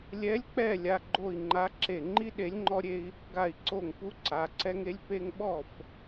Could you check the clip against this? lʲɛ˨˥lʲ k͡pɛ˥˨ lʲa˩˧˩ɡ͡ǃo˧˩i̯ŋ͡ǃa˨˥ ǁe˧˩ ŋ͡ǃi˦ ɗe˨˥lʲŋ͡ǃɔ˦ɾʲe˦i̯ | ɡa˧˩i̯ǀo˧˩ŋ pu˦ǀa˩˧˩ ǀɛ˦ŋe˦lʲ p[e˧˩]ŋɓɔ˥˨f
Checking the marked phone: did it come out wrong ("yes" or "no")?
yes